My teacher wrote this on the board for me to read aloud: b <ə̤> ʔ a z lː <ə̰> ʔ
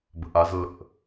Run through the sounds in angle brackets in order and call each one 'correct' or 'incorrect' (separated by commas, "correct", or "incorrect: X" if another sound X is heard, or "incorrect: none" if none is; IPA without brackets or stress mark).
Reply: correct, correct